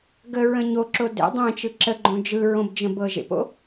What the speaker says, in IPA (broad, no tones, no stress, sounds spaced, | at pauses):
ɡ ə ɹ ə̃ ɲ o ǁ o d ḛ dˤ ẽ t͡ʃ ɯ ǁ ə ɡ͡ǃ õ d͡ʒ ɯ ɹ õ b d͡ʒ ə̃ b ɤ ʒ ḛ p o̰